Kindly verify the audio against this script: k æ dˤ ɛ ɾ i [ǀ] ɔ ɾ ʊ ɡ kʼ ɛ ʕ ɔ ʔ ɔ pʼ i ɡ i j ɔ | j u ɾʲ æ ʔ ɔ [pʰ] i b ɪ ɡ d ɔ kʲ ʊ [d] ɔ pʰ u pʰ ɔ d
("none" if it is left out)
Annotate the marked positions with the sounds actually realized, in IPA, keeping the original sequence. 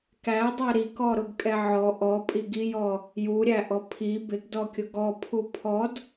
k, pʰ, ɡ

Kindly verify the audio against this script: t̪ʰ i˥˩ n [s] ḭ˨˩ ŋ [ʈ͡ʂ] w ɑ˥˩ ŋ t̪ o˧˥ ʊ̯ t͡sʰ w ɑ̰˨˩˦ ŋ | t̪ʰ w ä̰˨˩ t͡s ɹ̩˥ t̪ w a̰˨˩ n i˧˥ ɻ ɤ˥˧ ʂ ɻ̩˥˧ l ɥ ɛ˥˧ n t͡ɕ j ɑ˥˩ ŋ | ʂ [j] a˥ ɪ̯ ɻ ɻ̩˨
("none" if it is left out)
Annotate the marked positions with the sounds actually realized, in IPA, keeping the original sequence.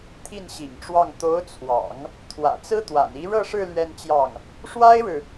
ɕ, ʈ͡ʂ, w

